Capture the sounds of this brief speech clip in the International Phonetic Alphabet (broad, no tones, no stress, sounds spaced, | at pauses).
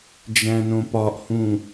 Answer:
d͡ʒ æ̃ n õ p ɒ ʔ h ũ